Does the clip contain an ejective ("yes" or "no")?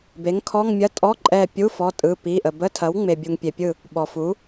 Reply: yes